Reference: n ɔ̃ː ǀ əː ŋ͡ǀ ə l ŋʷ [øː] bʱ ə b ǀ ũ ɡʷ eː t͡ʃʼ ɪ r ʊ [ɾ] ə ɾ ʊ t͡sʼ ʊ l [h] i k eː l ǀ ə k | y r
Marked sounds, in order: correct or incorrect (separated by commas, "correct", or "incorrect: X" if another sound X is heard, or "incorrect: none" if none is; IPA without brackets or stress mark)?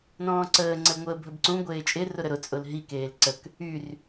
incorrect: əː, correct, incorrect: ɦ